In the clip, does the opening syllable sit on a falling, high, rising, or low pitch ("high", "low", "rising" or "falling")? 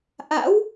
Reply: rising